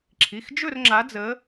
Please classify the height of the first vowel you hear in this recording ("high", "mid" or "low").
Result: high